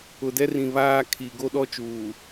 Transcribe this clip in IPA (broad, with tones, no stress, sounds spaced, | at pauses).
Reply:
ʊ˨ d ɛ˦ r ĩ˨ β aː˦ kʰ i˨ ɡ o˦ ɗ ɔ˦ t͡ʃ uː˨